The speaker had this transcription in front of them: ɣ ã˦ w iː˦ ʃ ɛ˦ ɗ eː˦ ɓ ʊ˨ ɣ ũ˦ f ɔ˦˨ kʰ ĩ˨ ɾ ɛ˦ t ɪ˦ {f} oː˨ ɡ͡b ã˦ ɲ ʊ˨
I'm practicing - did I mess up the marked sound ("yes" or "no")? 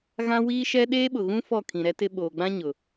yes